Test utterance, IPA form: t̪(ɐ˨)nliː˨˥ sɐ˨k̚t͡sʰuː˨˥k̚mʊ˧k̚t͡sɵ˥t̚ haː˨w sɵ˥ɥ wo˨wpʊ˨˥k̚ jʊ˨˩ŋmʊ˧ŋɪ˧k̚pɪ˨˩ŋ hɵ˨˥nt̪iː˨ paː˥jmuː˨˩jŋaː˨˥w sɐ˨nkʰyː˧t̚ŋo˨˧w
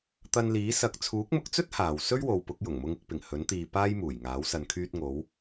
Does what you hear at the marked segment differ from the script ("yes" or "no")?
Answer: yes